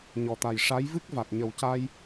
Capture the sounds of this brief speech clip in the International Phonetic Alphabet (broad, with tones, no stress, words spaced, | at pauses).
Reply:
ɲɔ˨˩t̪a˨˩jʂa˧˥j vɨ˦˥k̚va˨˩t̚ɲə˨˩wca˧j